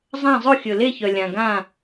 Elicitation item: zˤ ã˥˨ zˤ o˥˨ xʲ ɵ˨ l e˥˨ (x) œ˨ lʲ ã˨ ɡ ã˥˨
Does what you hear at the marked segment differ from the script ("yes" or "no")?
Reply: yes